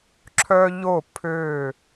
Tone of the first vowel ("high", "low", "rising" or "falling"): high